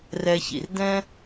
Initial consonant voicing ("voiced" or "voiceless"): voiced